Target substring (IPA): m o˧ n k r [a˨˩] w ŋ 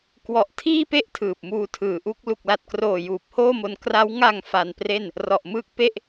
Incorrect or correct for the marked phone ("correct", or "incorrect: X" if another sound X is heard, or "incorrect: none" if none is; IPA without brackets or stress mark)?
incorrect: a˦˥